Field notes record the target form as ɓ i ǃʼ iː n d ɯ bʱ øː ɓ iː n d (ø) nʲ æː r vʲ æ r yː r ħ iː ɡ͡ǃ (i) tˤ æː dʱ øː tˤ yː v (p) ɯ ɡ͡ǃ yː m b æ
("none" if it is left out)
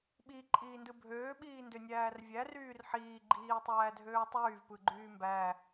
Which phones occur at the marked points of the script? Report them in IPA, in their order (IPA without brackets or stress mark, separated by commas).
ø, iː, p